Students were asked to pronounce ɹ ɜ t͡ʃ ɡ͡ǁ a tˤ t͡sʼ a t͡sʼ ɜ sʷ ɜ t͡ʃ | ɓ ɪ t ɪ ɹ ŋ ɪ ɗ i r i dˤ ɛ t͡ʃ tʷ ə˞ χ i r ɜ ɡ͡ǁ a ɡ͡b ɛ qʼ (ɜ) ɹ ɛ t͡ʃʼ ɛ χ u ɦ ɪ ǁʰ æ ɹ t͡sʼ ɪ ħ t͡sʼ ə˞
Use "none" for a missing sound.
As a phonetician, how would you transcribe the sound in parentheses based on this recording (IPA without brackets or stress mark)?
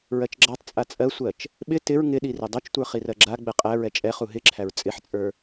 æ